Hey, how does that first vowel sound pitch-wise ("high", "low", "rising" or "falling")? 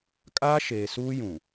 high